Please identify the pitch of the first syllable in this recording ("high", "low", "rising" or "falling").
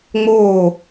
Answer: falling